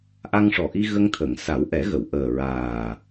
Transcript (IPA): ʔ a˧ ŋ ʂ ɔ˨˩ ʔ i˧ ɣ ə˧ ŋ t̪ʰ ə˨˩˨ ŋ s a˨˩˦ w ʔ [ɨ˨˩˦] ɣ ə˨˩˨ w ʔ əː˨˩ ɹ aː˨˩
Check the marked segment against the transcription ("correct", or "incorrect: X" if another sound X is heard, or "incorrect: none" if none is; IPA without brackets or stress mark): incorrect: ɛ˨˩˦